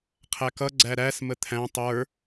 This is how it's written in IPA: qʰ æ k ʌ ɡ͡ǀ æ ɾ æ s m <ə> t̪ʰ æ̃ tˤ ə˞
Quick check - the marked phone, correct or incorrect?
correct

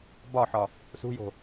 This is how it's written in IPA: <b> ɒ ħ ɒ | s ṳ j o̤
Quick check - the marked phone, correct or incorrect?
correct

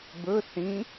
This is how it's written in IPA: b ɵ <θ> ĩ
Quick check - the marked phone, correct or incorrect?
correct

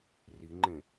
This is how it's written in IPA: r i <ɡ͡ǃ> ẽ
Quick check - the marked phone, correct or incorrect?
incorrect: ŋ͡ǃ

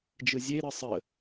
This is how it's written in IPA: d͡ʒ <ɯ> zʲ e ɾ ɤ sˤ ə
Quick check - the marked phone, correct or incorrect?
correct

